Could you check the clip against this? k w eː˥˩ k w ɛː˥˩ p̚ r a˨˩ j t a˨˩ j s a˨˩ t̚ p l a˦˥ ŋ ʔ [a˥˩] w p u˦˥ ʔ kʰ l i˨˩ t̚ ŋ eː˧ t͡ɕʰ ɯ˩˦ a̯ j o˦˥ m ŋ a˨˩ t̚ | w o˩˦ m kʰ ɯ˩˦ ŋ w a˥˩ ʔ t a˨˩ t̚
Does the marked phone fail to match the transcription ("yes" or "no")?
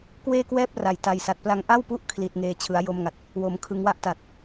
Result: no